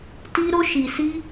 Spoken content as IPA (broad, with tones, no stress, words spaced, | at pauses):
ti˦ ɾo˦ ʃi˧ si˦